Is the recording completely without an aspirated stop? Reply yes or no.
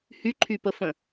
no